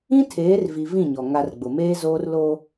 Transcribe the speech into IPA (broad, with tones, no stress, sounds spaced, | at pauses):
ĩ˦ tʰ eː˨˦ r v i˨ v ĩ˦˨ ɲ ɔ˨ ŋ a˨ r ɡ͡b ʊ˨ m eː˦ z oː˦ r l o˦